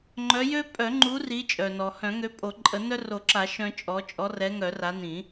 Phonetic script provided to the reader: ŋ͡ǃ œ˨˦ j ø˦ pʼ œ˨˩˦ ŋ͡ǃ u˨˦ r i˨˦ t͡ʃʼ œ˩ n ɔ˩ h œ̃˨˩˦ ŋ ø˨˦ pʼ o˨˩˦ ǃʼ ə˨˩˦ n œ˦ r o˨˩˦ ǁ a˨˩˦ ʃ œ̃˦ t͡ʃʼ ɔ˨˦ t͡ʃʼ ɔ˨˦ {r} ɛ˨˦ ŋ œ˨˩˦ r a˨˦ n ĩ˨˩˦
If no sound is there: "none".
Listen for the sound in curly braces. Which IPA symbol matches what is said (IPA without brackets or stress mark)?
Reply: r